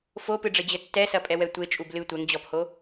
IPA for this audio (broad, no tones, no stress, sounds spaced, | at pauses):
f o p ɨ ɖ͡ʐ ɘ d͡ʑ ɘ tː ɛ s ɐ pʼ ɛ w ɛ tʷ e t͡ʃʼ u b l ɨ tʷ ɛ ŋ d͡ʑ ɔ p h o